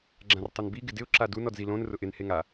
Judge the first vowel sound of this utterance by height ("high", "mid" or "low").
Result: low